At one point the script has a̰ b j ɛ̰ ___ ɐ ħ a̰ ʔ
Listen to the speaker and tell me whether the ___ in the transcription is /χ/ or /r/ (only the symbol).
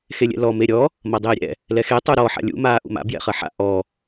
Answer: χ